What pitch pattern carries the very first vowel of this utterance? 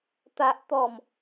high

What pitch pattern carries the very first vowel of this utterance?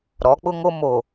rising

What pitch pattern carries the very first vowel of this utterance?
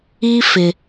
high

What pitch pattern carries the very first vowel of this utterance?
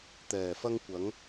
low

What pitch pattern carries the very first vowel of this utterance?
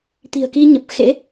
low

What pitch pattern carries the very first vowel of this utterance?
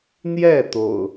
falling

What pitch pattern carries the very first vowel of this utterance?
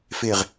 low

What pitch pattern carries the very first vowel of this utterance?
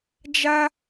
high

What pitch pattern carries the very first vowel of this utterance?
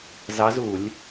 rising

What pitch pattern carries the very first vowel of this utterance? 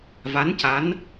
rising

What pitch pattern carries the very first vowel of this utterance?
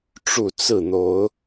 falling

